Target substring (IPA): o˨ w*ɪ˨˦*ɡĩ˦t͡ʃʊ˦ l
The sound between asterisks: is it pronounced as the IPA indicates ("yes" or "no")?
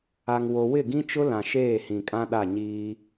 no